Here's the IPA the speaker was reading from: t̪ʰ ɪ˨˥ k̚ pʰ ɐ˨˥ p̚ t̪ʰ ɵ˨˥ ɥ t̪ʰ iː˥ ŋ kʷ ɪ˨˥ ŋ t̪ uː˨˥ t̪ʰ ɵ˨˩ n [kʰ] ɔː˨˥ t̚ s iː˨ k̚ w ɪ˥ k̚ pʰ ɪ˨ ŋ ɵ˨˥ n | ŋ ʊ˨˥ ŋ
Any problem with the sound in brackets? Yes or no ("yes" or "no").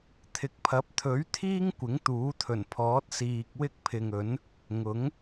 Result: yes